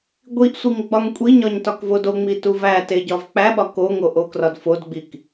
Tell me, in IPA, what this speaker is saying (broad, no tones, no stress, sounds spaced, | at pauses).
ɡʷ i ʔ sʷ i ŋ ɡ͡b ɒ ŋ kʷʼ i ɲ ɒ ɲ t ɒ k v o d o ŋ͡m i t u v æ t e ɟ ɒ v k͡p æ ɓ ɒ k o ŋ o ʔ o k r ɒ d f o d ɡ͡b i k